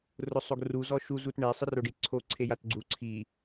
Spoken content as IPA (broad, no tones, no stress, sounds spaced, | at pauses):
r ʊ sˤ o ɡ r u z ɔ ʃ u z u t ɳ ɛ sˤ ɪ r o ɖ i ǀʰ o ǀʰ e j a t ɡ͡ǀ u ǀʰ i